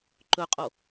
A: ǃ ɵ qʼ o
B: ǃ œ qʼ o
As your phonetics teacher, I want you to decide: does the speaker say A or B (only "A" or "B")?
A